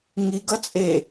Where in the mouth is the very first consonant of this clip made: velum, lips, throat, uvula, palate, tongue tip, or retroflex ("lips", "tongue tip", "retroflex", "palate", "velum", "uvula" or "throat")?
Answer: velum